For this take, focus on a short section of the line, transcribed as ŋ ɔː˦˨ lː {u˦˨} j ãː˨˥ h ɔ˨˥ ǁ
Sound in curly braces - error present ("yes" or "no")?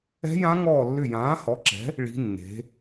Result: yes